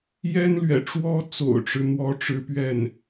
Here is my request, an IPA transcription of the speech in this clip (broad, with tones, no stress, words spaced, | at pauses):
jɛ˥nlɥɛ̰˨˩ʈ͡ʂwɔ˥ t͡so̰˨˩ʊ̯ʈ͡ʂɻ̩˦n̪wɔ˧˥ ʈ͡ʂɻ̩˥pɥɛ˥˩n